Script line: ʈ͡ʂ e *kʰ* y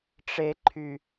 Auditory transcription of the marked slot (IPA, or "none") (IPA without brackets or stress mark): ǃʰ